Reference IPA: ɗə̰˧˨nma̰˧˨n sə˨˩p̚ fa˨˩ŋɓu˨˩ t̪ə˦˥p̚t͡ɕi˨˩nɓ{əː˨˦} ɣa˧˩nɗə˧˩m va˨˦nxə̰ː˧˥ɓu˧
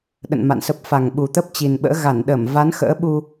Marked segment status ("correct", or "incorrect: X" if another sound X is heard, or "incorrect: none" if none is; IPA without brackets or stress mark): incorrect: ə̰ː˧˥